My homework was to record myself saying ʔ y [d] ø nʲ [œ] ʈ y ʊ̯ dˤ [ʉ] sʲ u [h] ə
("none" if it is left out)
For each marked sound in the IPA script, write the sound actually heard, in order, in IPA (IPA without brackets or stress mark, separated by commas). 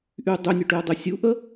dˤ, œ, ø, ʔ